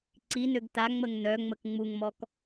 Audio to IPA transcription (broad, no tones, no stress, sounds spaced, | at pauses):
ǀ i n ø ɡ t a ŋ͡m ə ŋ n œ ŋ͡m ə k ŋ͡m u ŋ m ɔ k